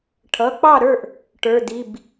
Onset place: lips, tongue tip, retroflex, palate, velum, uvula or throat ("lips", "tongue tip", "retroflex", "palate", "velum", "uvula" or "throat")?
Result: retroflex